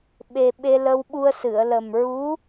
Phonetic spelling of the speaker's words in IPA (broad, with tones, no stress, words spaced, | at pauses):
ɓe˧ ɓe˧lə˧wɓu˧ə̯ sɨ˨˩˨ə̯lə˨˩mɹu˧˥